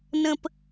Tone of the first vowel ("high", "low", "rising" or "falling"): low